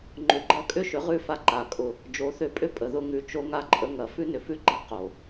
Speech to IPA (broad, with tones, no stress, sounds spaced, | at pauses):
ŋ͡ǃ ʏ˧ ɡ͡ǃ ɐ˦ kʼ ʏ˦ ʃ ʏ˨˦ ʁ ʉ˦˨ f a˦ ǃ a˨ kʼ ʊ˧ | d͡ʒ o˨˦ θ ʏ˧ pʼ ʏ˦ pʼ ə˨ ð ʊ˧ ŋ ʉ˨ t͡ʃ o˧ ŋ a˧ ǃʼ ə˧ ŋ ɐ˨ f ʉ˦ n ʏ˨ f ʉ˦ ɡ͡ǃ a˦ q o˨